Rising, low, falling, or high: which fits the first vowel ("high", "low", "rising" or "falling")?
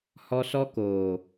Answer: high